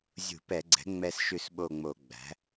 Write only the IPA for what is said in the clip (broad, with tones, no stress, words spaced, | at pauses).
zʲṳ˧˩˧pɛ˧˩˧ɡ͡ǀɛ̤˩˥ ŋ͡mɛ˦˨sʃʉ˦˨sɓo˦˨ŋ͡mo˧˩˧ ɡ͡bæ̤˩˥